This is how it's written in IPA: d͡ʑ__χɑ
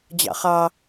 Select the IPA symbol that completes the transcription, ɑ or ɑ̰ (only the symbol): ɑ̰